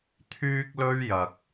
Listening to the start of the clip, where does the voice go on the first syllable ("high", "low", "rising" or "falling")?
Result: high